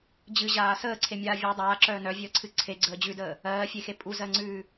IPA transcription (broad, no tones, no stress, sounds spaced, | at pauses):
d͡ʑ ɨ ʑ aː s əː ǀʰ e mʲ aː vʲ e dˤ aː ǁ œː n œ vʲ əː ǀʰ ɨ ǀʰ e ɡ͡ǀ əː d͡ʑ ʉ d əː | ɜː fʲ e x e pʼ u z ɜ ŋ͡ǀ ʉː